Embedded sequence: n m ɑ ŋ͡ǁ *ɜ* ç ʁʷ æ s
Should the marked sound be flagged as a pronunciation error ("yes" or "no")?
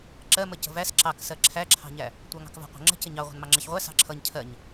no